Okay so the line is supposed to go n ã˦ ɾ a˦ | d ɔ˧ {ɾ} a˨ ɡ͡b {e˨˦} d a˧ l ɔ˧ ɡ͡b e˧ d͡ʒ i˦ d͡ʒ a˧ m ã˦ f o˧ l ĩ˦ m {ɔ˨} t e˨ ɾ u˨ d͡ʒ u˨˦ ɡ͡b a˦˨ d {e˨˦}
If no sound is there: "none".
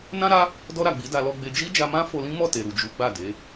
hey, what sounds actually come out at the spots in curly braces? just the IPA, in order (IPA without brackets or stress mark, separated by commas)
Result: ɾ, i˨˦, ɔ˦˨, e˨˦